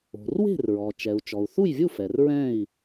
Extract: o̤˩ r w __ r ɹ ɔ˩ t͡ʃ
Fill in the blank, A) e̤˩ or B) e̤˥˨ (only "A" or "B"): B